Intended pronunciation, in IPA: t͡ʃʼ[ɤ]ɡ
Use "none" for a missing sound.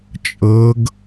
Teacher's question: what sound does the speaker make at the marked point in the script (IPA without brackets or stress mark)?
ɤ